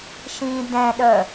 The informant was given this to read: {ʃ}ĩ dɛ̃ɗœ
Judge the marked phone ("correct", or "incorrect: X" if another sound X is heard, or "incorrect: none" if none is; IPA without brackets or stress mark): correct